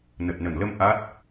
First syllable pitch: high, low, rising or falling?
low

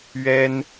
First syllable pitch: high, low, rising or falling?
high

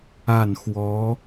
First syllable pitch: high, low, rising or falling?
falling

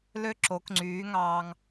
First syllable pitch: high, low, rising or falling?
high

